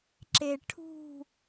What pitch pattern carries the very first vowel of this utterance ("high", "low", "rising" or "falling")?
low